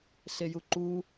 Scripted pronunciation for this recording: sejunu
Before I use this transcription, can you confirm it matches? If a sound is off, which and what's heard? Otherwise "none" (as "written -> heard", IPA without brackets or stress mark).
n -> ǃ